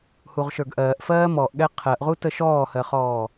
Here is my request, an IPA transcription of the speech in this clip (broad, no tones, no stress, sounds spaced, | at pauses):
h u ʁ ʃ ə˞ ɡ ʔ ɜː ʔ f ɜː m ɔ ʔ ɠ ɛ qʰ ɜ ʔ ʁ u t ə ʃ ɔː h ɜ χ ɔː